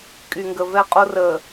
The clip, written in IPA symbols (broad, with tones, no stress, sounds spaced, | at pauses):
kʼ y˨ ŋ ɡ ə˨ v ɛ˦ qʼ o˦ r əː˨